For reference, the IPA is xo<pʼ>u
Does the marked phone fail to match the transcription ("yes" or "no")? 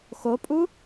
no